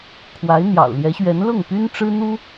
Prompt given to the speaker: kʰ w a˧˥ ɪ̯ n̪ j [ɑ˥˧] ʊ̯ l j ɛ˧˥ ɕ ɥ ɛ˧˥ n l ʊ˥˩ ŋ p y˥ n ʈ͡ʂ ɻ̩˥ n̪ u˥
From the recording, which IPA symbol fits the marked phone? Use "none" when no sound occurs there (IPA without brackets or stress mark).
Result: ɑ̰˨˩